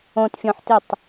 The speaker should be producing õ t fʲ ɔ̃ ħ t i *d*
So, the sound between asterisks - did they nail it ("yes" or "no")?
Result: no